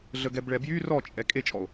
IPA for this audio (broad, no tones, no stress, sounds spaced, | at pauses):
ɮ ə ɡ ɛ b ɭ ɛ b j y r ɔ t͡ʃʼ ɛ kʼ e t͡ʃʼ ɔ o̯